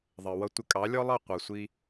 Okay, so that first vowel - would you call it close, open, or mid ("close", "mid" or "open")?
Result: mid